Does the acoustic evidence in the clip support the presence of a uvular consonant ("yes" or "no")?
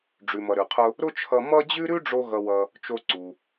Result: yes